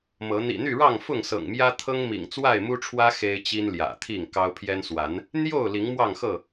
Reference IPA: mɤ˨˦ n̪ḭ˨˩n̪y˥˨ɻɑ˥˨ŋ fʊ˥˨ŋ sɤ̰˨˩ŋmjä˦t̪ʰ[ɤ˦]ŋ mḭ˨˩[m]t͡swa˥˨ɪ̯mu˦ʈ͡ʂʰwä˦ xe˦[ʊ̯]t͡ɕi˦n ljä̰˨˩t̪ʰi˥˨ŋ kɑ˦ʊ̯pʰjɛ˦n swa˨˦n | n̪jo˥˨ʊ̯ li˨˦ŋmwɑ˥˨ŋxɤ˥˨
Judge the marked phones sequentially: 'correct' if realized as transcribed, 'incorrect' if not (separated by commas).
correct, incorrect, incorrect